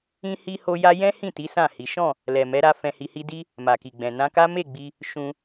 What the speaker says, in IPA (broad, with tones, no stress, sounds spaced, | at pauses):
ĩ˧ h i˧ h o˧ j a˧ j ɛ̃˦ h ĩ˦˨ t i˨˦ s ã˦˨ h i˨˦ ʃ ɔ̃˦˨ | l ɛ˨ m ɛ˨˦ ɾ a˧ f ɛ̃˧ h i˧ h i˦ d i˦ | m a˨ k i˨ ɡ͡b ɛ̃˨ n ã˧ k a˦ m e˦˨ ɡ͡b i˧ | ʃ ũ˧